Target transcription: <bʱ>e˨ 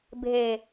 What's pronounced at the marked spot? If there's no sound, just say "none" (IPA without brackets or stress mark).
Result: bʱ